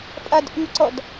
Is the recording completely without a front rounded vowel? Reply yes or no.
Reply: no